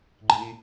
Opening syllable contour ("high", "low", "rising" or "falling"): low